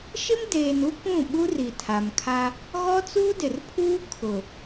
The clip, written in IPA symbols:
ʃ ɪ˦ m d eː˨ n u˦ k ũ˦˨ ɓ u˦ r i˨ tʰ a˨ m kʰ a˦ | ɣ ɔ˦ t͡s uː˦ d ɪ˨ r pʰ uː˦ kʰ ʊ˨

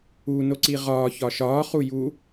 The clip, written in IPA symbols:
u n o ǀ i ʁ ɒː ç ɒ ʃ ɒː χ u j u

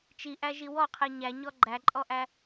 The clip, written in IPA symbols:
t͡ʃ i ʔ æ ʒ i w ɔ qʰ e ɲ æ ɲ ɔ ɡ͡ǃ æ ǃʼ ɔ ʔ æ

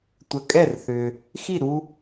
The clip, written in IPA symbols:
tʷ ə˩ kʼ ɛ˥˩ r θ ʏ˩ | x i˥˩ ɾ u˧

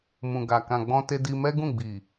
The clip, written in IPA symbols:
m ũ˨ ɡ a˨ k ã˨ ɡ͡b ɔ̃˧ t e˧ d i˧ m ɛ˦ ɡ ũ˦˨ ɡ͡b i˨

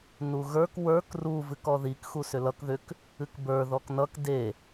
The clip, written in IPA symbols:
n u ɣ ə˞ k w ə˞ k r u v ɨ k ɔ ð i k x u s ʏ l ʌ k ð ʏ k | ɨ k b ə˞ ð ɔ k n ʌ k d e

